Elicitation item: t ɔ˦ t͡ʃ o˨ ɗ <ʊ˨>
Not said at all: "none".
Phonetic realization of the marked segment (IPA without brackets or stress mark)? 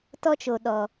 ɔ˨